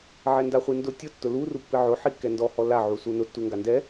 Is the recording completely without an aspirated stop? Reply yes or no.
yes